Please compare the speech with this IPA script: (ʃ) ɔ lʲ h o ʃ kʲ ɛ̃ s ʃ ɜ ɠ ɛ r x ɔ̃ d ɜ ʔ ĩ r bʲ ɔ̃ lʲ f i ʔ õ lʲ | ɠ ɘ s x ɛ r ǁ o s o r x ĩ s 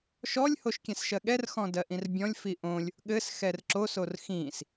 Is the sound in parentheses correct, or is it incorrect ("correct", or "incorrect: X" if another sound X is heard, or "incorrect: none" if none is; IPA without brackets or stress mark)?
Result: correct